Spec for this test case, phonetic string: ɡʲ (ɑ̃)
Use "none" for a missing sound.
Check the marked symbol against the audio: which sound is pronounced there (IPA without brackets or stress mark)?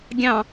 ɑ̃